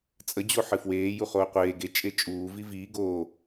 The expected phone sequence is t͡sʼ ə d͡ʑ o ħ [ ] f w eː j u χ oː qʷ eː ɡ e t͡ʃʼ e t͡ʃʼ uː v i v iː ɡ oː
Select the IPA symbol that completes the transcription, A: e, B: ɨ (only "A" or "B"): B